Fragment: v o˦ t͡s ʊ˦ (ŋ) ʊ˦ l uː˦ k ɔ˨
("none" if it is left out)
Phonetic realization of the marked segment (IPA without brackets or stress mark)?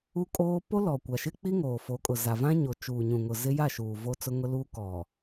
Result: ŋ